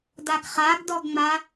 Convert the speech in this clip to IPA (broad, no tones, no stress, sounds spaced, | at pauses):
d a ɡ χ a ɡ d ɔ ɡ ŋ͡m a